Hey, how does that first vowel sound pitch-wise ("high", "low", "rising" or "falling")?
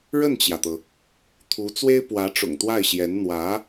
falling